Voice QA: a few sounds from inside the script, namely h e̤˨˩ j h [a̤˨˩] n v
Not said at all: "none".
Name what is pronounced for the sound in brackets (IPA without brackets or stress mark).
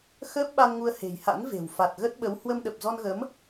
a̰˧˥